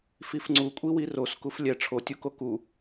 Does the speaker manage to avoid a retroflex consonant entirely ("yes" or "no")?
no